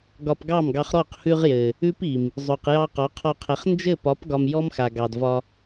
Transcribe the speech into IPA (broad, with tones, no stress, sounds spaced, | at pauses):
ɡ ɒ˧ p ɡ ɑ˦˨ m ɡ ɑ˧ χ ɾ ɔ˦˨ q h ʉ˧ ʁ j ɘ˨ | ʉ˦ p i˨ m | zˤ ʉ˨ q j ɑ˧ q ɒ˨˦ qʰ ɒ˧ qʰ ɘ˨˦ χ n d͡ʒ ɘ˦˨ p ɒ˨˦ p ɡ ɒ˧ m j ɔ˦ m x a˨ ɡ ɑ˨ d v ɒ˧